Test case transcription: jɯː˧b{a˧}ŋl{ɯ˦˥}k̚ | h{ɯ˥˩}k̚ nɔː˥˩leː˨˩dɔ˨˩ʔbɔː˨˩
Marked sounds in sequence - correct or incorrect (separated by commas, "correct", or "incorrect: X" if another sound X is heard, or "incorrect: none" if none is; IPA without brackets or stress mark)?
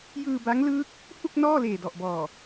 incorrect: a˦˥, incorrect: ɯː˦˥, incorrect: u˥˩